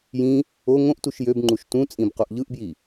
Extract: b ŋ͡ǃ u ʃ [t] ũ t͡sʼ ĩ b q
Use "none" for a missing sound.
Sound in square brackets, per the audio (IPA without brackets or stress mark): t